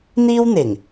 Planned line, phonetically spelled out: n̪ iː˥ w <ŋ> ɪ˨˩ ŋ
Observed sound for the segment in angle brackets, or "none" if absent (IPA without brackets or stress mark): n̪